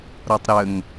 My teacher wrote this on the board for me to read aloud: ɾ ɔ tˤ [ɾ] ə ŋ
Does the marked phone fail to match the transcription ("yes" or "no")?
no